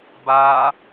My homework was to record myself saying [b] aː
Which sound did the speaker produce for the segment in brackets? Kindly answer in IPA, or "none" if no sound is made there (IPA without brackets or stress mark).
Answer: b